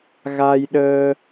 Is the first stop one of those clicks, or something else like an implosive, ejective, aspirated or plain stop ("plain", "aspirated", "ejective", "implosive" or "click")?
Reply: implosive